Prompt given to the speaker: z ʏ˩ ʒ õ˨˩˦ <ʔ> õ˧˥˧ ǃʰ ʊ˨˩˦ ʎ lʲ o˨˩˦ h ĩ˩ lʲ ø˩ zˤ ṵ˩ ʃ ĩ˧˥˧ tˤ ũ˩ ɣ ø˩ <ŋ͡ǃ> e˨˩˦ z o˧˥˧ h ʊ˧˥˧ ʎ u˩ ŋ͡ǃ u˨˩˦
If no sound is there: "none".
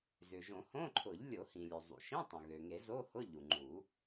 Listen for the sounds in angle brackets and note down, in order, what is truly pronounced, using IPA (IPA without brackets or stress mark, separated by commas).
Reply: h, ŋ